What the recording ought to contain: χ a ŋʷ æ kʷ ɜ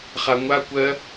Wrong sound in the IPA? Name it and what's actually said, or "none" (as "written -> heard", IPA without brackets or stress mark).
æ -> a